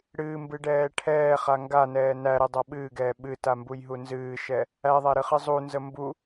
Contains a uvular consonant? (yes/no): yes